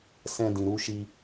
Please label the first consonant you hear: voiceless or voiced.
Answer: voiceless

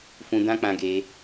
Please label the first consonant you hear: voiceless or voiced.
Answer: voiceless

